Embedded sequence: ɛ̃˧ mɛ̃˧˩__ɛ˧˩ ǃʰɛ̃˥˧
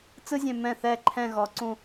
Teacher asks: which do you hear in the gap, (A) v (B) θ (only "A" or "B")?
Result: B